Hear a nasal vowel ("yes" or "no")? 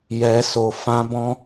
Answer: yes